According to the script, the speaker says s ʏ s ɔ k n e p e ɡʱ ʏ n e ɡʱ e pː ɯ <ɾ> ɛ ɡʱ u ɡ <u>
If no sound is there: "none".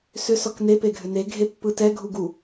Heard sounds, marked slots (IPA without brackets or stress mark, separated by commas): t, u